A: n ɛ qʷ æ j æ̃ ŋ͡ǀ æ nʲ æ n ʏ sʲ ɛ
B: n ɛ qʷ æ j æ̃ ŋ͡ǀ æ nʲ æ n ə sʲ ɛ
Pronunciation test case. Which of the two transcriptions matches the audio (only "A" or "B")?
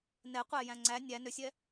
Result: A